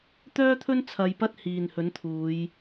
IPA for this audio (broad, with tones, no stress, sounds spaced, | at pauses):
t̪ œː˥ t̪ʰ ɵ˥ n t͡sʰ ɐ˧ j p ɐ˥ t̚ h iː˨ n h ɵ˨˥ n t̪ʰ uː˨˧ j